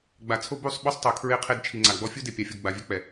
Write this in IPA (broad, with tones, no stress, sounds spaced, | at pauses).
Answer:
ɡ͡b a˨ t͡sʰ o˦ b u˦˨ sˤ ɓ u˦ sˤ tˤ o˨ kʰ ɹ e˦ qʰ e˦ d t͡ʃʰ i˨ ŋ͡ǀ a˨ ɡ͡b ɔ˦ fʲ u˦ d e˨ pʲ a˨ fʲ o˨ ɡ͡b a˨ vʲ ɛ˦ k͡p ɛ˨